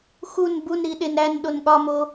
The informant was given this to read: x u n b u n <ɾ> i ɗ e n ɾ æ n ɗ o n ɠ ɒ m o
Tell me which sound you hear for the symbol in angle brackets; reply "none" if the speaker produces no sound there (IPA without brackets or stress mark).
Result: ɾ